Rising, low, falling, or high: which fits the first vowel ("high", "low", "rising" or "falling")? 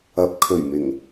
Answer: rising